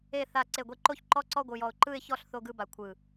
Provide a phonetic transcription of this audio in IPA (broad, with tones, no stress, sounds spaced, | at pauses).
e˧˩ θ a˧˩ ǀ e˧˩ ɡʷ e˧ ǃ o˥˧ ç ǃ ɔ˥˧ ǀ ɔ˥˧ ɡʷ ɯ˧˩ j ɔ˧˩ ʊ̯ ǃ ɯ˥˧ ɪ̯ ç ɔ˥˧ ɬ θ o˥˧ ɡ ɯ˥˧ b a˧ kʷʰ ɯ˧˩